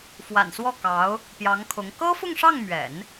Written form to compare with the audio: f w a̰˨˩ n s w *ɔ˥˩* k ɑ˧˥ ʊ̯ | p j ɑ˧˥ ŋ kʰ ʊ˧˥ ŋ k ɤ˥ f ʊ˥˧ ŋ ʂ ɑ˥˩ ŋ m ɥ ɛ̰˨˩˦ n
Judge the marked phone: correct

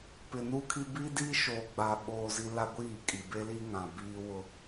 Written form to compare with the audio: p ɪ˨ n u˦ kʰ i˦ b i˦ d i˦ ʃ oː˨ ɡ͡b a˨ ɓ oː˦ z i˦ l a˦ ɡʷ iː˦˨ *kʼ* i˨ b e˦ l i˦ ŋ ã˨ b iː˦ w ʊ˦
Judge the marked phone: correct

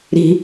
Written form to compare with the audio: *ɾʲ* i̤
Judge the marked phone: incorrect: ɾ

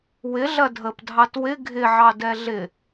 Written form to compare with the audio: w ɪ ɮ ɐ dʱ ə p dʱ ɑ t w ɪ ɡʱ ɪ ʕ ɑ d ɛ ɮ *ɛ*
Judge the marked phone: incorrect: ɪ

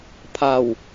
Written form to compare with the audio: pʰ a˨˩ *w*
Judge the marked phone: correct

